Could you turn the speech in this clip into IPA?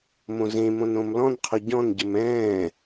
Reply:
m õ z ẽ m õ n õ m l ɔ̃ n qʰ o ɟ ɔ̃ n ɟ ə m ɛ̃ː

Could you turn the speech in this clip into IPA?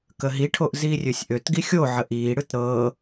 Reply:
k ə ɦ i ʈʰ o ʔ z iː rʲ ø sʲ ʔ ø t ɡ i xʲ o ʕ ə ʔ iː ɽ ɯ t ɾ ɤː

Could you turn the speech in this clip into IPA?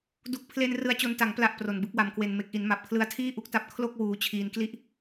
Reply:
d u˨˩ k̚ pʰ l e˧ n r ɯ˧ a̯ t͡ɕ o˧ n t a˩˦ ŋ p l a˨˩ ʔ p r o˨˩ n b ɯ˦˥ k̚ w a˧ m k w e˧ n m e˨˩ k̚ ʔ i˩˦ n m a˨˩ p̚ kʰ l ɯ˦˥ a̯ tʰ iː˥˩ ʔ u˦˥ k̚ t a˦˥ p̚ kʰ l o˥˩ k̚ w uː˧ t͡ɕʰ iː˧ n k l i˥˩ ʔ

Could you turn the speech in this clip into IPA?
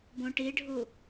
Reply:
b õ ʈ i ɖʱ u

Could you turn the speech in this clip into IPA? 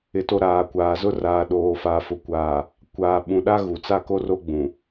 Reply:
ɪ˨ t o˨ ɾ aː˨ kʷ aː˨ z ʊ˦ r aː˨ ɗ oː˨ f a˨ f ʊ˨ kʷ aː˨ | kʷ aː˨ ɓ ũ˨ ɗ a˦ ɣ u˨ t͡s a˦ k o˦ r o˦ ɡ͡b ũ˨

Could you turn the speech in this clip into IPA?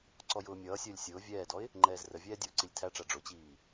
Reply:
ǀ ɔ j ʊː mʲ ʌː sʲ əː lʲ sʲ ʊː vʲ ɛː d ɔ ɪ̯ | ŋ͡ǃ ɛː z r ə vʲ ɛː dʲ ʊː ǀ i lʲ tʰ æ ʈ͡ʂ æ ɖ͡ʐ ʊ t͡ɕ iː

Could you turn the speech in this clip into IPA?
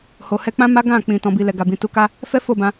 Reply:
h o˨ h ɛ˧ k͡p ã˦ m a˦ ɡ ã˦˨ k͡p ĩ˨ t ɔ̃˨ b i˨ l ɛ˨ ɡ a˨ b ĩ˨ t u˨˦ k a˦ | f ɛ˦ f o˦˨ b ã˧

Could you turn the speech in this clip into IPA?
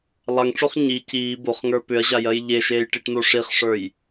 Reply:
lˠ a ŋ ʈ͡ʂ o χ ɲ i c iː b o χ ŋ ə˞ p ʏ ɐ̯ ʑ a j ɜ j ʎ e ʃ eː j ʈ i ʈ n o ʂ i χ ʂ ə˞ j

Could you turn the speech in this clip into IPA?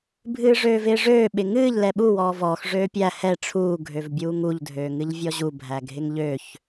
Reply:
bʱ ɨː ʐ øː v ɪː ʐ øː ɓ ɪ ŋ ɨː ʎ l ɛ ɓ u w ɔː v ɔː x ʐ øː pʲ æ h ɛ ʈ͡ʂʰ uː ɡʱ ø v bʲ uː ŋ u ʎ dʱ øː ŋ ɨ ʎ vʲ ɔ ʑ u bʱ æ ɡʱ ɪ ŋ ʎ ø ç

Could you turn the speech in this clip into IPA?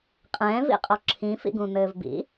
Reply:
qʼ ɛ̃ː v ḭ qʼ ɔ ǁʰ ĩ f ḭ ɡ ũ n̪ ɘː v b ḭ

